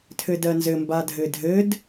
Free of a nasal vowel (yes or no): yes